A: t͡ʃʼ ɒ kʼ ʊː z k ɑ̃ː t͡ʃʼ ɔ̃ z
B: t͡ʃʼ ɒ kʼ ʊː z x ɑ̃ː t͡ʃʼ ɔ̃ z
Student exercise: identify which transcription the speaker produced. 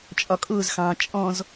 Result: B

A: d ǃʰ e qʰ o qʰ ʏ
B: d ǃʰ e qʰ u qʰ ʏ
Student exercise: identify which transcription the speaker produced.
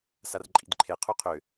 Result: B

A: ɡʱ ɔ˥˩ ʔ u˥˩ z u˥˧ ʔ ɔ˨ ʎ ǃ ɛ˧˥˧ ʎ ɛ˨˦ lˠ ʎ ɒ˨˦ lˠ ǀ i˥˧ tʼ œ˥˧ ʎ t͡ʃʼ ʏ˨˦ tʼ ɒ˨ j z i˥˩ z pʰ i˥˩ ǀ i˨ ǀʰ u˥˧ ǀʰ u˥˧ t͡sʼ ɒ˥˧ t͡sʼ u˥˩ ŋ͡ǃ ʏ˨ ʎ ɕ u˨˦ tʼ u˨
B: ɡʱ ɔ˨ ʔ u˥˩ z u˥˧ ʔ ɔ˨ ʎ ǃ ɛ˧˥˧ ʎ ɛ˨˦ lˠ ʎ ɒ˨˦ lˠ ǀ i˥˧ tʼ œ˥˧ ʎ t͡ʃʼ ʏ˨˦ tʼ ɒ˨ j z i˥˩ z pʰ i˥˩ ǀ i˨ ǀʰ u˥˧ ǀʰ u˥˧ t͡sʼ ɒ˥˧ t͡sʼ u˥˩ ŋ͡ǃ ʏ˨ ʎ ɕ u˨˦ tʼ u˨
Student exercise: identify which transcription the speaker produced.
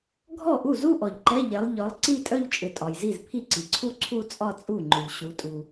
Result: A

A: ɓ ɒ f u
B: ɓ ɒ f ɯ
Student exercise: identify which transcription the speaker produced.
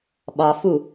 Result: A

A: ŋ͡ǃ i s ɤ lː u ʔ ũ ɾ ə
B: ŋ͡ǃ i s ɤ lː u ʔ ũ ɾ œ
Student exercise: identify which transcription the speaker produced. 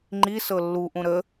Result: A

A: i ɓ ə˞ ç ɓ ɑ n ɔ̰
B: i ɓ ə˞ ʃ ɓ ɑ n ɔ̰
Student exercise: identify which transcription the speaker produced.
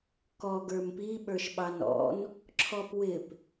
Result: B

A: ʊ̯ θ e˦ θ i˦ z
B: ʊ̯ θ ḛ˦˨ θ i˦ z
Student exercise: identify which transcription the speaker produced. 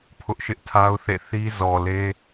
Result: B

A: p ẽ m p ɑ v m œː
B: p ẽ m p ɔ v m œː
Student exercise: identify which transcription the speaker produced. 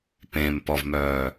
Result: B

